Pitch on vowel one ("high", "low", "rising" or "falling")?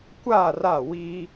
falling